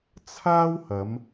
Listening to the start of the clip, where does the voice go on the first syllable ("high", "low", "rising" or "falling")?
high